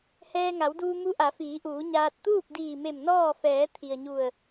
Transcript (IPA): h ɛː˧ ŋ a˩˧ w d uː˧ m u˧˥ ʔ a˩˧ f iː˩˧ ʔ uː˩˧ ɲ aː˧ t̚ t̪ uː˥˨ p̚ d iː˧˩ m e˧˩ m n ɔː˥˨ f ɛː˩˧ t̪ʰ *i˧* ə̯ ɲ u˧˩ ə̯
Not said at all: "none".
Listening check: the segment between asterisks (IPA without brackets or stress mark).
i˩